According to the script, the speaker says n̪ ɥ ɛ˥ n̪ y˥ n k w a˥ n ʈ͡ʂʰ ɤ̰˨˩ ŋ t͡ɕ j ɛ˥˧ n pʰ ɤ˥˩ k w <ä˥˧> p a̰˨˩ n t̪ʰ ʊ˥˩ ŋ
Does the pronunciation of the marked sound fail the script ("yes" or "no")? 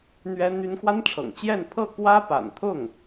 yes